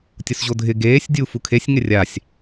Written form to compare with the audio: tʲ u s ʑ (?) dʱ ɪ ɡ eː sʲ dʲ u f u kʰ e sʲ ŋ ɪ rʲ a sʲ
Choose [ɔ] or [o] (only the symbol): o